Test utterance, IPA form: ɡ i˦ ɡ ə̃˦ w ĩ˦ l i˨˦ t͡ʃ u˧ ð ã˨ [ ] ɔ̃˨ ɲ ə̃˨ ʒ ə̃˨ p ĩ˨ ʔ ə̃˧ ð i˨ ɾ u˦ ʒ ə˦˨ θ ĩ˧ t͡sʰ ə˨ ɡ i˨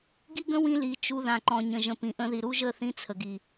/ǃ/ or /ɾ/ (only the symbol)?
ǃ